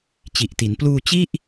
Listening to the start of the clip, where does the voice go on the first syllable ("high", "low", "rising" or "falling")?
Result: low